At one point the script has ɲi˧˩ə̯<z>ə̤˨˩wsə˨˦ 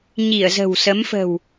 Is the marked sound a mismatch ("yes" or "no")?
no